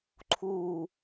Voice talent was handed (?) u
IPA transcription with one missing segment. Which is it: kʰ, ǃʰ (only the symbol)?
ǃʰ